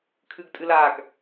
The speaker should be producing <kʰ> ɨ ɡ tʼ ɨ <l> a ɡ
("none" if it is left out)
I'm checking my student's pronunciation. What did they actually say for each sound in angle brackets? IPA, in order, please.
kʰ, l

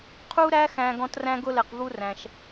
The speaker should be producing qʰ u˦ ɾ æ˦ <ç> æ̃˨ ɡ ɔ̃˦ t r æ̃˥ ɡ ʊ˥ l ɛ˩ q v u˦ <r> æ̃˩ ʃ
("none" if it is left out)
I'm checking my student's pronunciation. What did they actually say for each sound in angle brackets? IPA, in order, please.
x, r

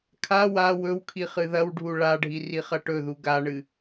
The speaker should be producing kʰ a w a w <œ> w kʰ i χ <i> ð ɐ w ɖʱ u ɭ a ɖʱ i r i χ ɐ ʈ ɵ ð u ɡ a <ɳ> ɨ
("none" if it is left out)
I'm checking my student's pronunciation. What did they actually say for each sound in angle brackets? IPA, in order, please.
ɵ, ɨ, ɳ

